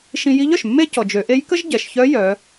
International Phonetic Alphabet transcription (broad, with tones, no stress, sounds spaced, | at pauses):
ʃ ĩ˧ j i˧˥ ʎ œ˩ ʃ mː e˥ c ɔ˩ d͡ʒ ø˩˧ ʔ e˧˥ j k ə˥ ʒ ɟ ɛ˩ ʃ ç œ˧˥ j œ˩˧